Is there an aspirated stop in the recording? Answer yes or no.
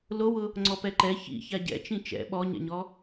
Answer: no